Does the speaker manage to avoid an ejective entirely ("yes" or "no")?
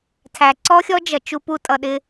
no